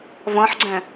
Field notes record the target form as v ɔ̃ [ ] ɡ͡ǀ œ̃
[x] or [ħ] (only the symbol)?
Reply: ħ